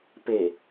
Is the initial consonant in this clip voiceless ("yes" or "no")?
yes